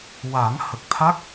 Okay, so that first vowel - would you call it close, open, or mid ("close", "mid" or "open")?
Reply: open